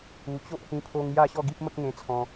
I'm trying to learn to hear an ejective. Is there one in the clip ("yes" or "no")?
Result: no